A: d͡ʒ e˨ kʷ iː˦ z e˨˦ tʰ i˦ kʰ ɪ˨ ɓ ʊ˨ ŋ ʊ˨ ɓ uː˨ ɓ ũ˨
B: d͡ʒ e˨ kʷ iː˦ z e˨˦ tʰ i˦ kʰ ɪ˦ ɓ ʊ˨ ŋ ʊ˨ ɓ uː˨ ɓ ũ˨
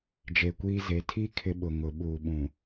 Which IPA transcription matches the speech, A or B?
B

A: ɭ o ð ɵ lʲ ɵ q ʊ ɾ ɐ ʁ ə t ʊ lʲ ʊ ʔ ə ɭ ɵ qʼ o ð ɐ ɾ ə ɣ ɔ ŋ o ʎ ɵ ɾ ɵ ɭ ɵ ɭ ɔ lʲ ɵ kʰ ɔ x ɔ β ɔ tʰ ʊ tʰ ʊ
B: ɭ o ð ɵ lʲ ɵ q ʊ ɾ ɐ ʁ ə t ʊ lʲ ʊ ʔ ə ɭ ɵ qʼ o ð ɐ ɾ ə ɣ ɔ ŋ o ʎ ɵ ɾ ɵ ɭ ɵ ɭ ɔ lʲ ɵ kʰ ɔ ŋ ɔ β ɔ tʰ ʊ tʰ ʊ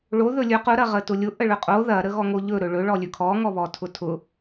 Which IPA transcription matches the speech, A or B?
B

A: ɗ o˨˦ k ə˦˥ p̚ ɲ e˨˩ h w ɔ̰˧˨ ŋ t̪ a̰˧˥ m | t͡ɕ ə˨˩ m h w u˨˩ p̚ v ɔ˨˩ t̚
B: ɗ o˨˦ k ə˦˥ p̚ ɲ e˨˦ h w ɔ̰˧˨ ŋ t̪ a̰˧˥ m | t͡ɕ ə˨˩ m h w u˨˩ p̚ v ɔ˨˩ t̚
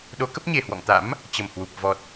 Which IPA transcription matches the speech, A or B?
A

